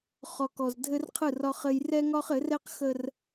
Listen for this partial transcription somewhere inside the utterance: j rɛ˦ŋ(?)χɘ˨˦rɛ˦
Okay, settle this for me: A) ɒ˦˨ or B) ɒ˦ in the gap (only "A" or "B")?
B